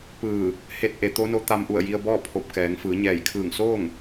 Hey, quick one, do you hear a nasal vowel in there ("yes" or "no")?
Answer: no